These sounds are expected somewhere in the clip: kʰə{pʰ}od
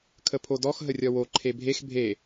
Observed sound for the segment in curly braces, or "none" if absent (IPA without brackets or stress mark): pʰ